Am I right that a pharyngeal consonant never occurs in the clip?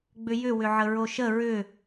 no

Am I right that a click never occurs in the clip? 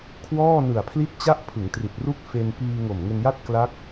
yes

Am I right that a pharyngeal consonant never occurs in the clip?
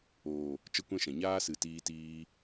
yes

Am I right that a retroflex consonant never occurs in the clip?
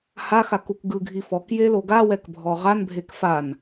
yes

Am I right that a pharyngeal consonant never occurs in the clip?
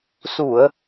yes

